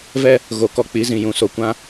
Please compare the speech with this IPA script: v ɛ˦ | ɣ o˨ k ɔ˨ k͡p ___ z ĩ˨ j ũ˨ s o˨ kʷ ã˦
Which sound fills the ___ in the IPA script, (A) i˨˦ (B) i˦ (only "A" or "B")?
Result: A